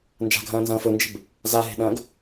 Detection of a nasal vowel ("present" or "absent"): present